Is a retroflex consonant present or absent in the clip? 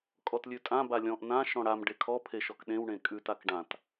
present